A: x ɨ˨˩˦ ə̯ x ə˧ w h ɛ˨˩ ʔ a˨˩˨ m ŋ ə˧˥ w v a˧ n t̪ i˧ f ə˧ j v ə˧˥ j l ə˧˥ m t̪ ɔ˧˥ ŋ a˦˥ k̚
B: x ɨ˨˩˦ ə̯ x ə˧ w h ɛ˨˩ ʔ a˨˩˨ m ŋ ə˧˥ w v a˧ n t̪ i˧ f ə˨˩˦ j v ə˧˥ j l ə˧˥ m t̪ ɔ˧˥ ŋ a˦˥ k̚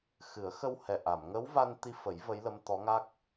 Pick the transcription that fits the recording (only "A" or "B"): B